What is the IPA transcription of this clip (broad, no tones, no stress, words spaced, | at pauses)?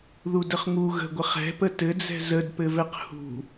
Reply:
ðudəχŋu ɣə̤ɡʷə χɛ̤pə tɘd͡zɛ̤ zədpɘvɛq hṳ